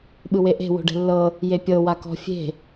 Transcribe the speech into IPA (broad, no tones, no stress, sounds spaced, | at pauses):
ɓ ɯ w e ʔ e̤ w o̤ ɖ ɛ̤ lː ɤ | j e pʲ ɤ w a k ɔ̤ fʲ e̤